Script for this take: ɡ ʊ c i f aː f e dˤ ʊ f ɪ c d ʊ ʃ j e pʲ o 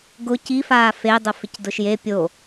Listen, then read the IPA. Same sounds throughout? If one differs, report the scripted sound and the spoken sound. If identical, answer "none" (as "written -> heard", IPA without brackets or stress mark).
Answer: none